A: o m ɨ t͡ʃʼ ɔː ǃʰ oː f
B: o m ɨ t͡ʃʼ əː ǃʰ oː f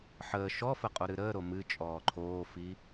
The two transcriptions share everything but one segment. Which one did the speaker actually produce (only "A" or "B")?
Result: A